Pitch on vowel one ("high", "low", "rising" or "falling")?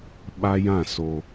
high